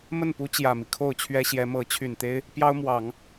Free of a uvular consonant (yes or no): yes